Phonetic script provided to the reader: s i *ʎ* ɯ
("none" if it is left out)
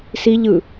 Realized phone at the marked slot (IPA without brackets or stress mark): ʎ